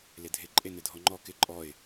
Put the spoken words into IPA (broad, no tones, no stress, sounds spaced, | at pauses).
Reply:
l ɪ dʱ ɪ ǃʼ e n ɪ dʱ ɔ ŋ͡ǃ ɔ k ɪ ǃʼ ɔ ɪ̯